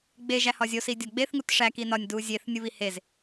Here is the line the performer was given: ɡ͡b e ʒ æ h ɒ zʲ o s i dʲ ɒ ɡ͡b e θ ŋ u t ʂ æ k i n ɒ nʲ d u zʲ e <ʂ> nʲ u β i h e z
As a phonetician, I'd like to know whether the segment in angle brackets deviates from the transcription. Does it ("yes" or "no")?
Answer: yes